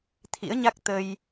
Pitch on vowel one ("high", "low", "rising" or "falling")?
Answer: rising